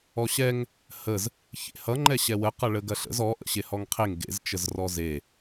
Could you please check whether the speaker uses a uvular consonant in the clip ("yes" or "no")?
yes